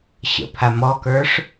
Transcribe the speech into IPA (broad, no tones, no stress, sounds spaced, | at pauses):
ɕ ə̰ pʰ a m ɔ k ə˞ ʂ